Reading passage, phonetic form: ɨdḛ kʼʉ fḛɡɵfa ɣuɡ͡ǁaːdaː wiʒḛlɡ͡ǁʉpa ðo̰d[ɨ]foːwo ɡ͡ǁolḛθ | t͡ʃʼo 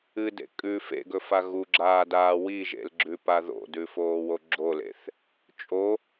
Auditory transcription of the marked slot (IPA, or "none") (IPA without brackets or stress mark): ʉ